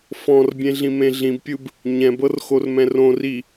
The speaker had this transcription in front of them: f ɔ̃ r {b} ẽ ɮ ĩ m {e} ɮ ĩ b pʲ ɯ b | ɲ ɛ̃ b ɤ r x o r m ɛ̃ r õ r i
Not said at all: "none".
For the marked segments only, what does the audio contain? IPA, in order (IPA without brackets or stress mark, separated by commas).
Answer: bʲ, ẽ